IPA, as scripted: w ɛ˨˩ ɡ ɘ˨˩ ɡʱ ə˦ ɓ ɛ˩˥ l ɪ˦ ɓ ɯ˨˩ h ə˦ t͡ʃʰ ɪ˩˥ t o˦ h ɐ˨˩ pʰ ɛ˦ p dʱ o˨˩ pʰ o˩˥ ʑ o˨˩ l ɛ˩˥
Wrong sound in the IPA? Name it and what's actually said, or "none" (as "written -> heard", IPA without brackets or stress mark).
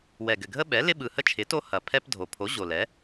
none